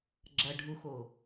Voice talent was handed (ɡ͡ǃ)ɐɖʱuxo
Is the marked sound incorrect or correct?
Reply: incorrect